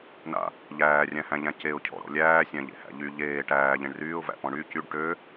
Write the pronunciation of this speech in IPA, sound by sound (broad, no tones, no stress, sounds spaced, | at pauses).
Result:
n a̰ | ʎ æː rʲ æ̃ h æ̃ ʎ æ̃ c e ʊ̯ cʰ ɔ̰ ɾ ɔ̰ lʲ æː sʲ æ̃ ʎ ḛ h æ̰ ʎ y ʎ eː ʈ æː ʎ ẽ ɳ r yː ʊ̯ v æ̰ p ɔ̃ ɳ y c y ɖ ʈ ø